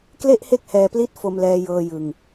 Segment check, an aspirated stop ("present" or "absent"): absent